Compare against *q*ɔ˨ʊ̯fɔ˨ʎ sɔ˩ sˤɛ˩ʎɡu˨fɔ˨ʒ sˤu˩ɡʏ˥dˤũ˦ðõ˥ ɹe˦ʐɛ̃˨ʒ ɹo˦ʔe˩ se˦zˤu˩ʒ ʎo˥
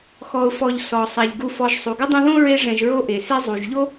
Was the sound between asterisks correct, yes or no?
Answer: no